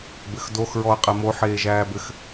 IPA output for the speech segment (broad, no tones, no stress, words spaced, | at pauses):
bɘxdoxɹɔə̯ qʼɛmo ħeːʒæːbɘx